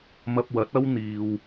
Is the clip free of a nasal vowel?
yes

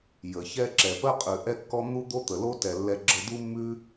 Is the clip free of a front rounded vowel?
yes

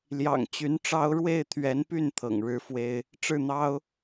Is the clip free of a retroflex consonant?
no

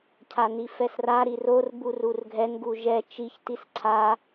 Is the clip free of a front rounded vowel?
yes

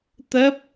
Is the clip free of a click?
yes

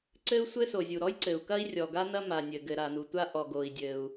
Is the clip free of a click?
no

